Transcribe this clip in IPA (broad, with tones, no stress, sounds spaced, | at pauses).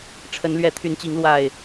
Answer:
ʈ͡ʂʰ ə˨˦ n l ɥ ɛ˨˦ t̪ʰ y˨˦ n t͡ɕ i˨˦ ŋ l w a˨˩ ɪ̯